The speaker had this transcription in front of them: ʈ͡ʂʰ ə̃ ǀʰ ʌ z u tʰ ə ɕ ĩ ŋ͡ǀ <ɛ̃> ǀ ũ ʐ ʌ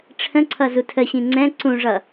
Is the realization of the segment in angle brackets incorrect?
no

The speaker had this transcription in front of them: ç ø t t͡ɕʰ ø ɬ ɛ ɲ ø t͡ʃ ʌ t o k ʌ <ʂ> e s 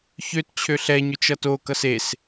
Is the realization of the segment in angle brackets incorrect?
yes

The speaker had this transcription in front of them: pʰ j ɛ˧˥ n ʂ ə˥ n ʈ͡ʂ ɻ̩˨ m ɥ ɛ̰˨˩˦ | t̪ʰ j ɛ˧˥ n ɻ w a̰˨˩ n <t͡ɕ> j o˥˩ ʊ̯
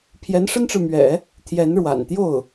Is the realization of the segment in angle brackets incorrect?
yes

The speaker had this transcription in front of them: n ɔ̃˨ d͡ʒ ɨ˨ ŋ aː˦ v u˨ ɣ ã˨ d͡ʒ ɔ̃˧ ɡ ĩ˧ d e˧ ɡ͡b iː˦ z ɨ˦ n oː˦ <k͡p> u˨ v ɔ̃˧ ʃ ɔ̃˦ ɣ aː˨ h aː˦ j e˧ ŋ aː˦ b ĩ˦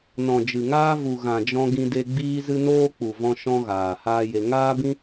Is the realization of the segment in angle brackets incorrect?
no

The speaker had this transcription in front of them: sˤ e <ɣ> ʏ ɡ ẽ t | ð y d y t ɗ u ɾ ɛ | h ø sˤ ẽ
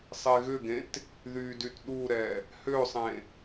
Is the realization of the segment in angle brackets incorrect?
no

